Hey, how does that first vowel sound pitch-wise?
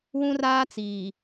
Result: high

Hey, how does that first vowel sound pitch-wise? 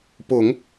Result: low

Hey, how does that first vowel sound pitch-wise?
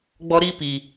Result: high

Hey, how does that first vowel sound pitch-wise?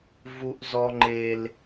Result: low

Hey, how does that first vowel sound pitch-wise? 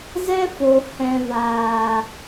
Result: high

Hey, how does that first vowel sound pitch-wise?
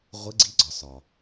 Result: rising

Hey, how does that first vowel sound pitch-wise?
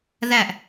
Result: falling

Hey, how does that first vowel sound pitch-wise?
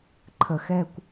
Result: low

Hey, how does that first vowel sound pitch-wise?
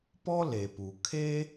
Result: high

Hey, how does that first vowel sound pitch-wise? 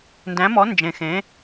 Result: rising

